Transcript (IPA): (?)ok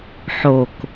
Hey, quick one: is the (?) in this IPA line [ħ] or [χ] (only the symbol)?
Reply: ħ